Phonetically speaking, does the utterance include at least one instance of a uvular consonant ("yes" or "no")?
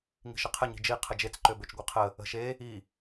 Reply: yes